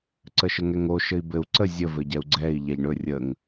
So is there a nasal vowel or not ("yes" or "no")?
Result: no